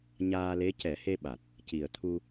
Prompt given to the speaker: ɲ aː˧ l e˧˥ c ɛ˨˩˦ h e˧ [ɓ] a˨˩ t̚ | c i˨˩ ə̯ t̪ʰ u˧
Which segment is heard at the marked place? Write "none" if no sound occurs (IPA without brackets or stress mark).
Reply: ɓ